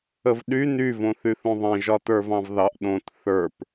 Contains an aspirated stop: no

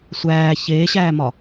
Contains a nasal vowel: no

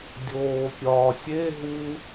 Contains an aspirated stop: no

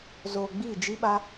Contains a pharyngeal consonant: no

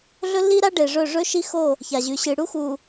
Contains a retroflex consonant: yes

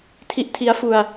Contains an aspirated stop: yes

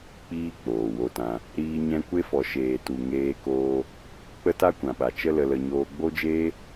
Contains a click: no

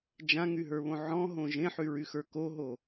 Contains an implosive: no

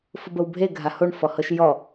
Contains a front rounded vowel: no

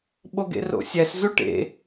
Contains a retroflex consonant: yes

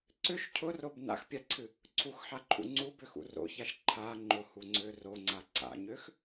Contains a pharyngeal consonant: yes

